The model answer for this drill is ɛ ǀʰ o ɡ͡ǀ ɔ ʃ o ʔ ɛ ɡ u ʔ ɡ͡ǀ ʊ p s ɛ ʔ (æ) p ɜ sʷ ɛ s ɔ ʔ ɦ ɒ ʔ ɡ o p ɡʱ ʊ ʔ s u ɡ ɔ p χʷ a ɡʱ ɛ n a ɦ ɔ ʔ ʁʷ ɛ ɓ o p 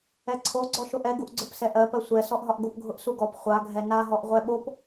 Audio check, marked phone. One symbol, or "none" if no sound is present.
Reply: ɜ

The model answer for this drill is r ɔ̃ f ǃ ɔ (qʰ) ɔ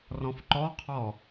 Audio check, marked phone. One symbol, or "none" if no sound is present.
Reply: qʰ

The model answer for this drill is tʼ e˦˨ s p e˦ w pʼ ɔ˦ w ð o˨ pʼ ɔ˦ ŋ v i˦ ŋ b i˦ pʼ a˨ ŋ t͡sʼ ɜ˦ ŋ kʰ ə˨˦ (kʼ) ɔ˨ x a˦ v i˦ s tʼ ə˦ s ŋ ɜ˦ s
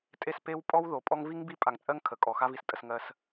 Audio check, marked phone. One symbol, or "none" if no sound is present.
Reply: kʼ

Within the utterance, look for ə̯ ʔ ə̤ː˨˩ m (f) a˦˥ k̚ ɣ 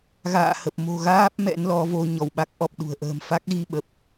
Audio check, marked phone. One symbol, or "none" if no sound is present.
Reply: f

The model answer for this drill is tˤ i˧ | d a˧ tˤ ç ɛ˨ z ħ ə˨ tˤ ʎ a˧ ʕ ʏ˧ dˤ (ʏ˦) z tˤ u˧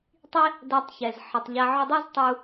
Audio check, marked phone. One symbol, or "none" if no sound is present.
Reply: ɛ˦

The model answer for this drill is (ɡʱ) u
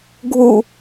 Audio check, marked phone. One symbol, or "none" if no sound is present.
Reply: ɡʱ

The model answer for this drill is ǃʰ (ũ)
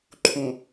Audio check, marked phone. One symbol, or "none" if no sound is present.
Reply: ũ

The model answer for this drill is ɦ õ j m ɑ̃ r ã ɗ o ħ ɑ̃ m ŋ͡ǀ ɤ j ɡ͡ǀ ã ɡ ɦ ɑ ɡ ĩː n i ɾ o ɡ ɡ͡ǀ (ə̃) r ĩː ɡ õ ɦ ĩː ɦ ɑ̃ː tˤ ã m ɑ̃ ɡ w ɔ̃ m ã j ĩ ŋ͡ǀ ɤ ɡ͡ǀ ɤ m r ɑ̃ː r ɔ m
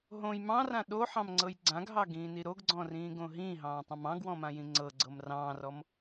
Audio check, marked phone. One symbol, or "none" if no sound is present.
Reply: ɔ̃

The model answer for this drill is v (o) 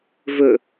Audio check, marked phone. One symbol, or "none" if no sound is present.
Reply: ɵ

